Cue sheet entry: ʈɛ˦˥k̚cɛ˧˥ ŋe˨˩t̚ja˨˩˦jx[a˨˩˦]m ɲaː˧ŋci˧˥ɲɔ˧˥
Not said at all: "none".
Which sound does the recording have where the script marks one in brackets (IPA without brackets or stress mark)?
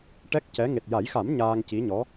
a˨˩˦